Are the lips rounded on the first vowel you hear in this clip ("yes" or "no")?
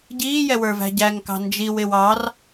no